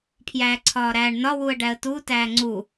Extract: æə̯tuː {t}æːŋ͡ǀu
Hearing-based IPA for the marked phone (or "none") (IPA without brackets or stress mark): t